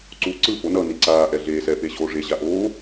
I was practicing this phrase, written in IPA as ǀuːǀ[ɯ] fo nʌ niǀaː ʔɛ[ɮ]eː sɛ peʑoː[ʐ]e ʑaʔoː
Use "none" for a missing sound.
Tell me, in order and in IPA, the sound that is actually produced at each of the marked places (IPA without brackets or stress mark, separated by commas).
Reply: ɯ, ɮ, ʐ